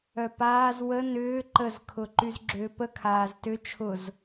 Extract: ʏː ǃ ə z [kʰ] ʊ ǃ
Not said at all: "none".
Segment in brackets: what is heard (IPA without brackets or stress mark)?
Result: kʰ